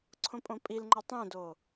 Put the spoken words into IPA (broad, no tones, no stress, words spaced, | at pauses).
ǀʰõpʼõpʼilŋ͡ǃa tˤẽdo